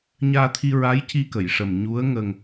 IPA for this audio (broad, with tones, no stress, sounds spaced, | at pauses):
ɲ aː˧ t̪ʰ i˧ ɹ a˧˥ j c i˧ k ə˨˩˨ j ʂ ə˨˩ m ɲ u˧˥ ə̯ ŋ ə˧ ŋ